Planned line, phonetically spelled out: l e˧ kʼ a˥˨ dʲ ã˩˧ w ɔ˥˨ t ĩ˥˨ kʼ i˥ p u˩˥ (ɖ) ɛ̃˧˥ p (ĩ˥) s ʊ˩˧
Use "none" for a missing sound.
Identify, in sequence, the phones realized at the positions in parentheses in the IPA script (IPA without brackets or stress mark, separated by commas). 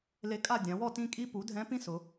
dʱ, ĩ˥